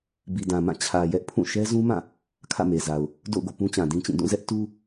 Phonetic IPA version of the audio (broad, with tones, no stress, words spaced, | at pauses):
bi˨dã˨mã˦˨ t͡ɕʰä˨ jɛ˦ʔpʰũ˦˨ ʃɛ˦zũ˦mã˦˨ | kʰä̰˦˨me˨za˨ʊ̯ | do̰˦˨ʊ̯ɡo̰˦˨ pũ˦t͡ɕã˨dĩ˦t͡ɕĩ˦˨ dũ˦˨zɛ˦ʔ tu˦